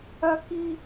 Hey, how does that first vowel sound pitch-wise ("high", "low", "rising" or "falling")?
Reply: high